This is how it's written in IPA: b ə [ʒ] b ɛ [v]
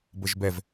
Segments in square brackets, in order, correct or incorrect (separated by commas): correct, correct